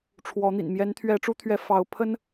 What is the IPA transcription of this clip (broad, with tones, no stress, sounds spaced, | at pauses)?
ʈ͡ʂʰ w ɔ˨˦ n̪ ḭ˨˩ n m j ɛ˨˦ n t̪ʰ ɥ ɛ˨˦ ʈ͡ʂ u˦ t̪ʰ ɥ ɛ˨˦ f ɑ˨˦ ʊ̯ pʰ ə˦ n